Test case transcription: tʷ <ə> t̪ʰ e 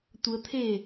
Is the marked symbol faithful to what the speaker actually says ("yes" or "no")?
yes